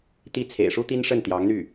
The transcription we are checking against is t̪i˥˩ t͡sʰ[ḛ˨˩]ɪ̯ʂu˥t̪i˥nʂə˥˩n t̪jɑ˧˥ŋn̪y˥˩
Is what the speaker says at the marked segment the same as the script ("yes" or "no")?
yes